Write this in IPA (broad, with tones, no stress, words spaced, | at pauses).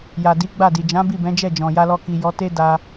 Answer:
ja˨di˨˦ ɡ͡ba˦˨di˨ d͡ʒã˨˦ bi˦˨bɛ̃˨˦d͡ʒɛ˦˨ d͡ʒɔ̃˨ja˧lɔ˧ ki˨ jɔ˨˦te˦ da˦